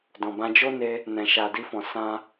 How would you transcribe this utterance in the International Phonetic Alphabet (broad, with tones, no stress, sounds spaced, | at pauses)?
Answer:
d ɔ̃˨ b ã˧ d͡ʒ o˦ n e˧ | n ɛ̃˨ ʃ a˨ d i˧ f ɔ̃˨ s ã˧